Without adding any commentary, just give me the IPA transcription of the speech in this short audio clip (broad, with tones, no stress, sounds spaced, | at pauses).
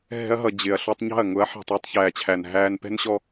ɦ ɛ̤˧ ɐ̯ ɦ ʌ˨ d͡ʑ ɪ˨ ɐ̯ ɬ ɔ˧ tˤ ɲ ɑ̤˦˨ ɐ̯ ŋ ʊ˨˦ ɐ̯ ħ ɛ̤˨ tˤ æ˧ tˤ ç æː˨ t͡ɕʰ æ˨ n ɦ æː˧ n p ɛ̤˦ n ɕ ɔ˦